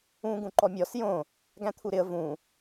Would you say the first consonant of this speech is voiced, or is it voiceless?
voiced